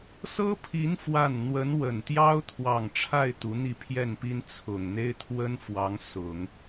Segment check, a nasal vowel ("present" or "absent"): absent